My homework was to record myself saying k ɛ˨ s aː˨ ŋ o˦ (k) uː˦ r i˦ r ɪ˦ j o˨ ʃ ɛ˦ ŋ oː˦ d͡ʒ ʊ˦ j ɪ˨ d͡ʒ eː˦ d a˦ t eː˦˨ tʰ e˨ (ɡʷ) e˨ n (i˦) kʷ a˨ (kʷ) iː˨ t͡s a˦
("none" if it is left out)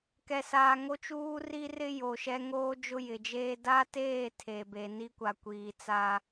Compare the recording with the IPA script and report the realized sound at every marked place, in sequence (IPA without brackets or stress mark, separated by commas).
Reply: t͡ʃ, b, i˦, kʷ